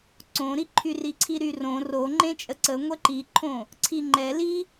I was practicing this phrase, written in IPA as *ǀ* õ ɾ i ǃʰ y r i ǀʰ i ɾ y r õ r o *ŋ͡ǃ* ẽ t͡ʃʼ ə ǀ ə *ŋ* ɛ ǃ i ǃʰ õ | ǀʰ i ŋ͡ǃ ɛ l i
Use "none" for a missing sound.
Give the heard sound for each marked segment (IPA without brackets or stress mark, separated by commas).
ǀ, ŋ͡ǃ, ŋʷ